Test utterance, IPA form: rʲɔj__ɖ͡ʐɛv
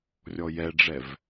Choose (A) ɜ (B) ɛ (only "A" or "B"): B